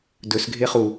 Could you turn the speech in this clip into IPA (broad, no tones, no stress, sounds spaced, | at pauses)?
d ɵ s ɡʱ e χ u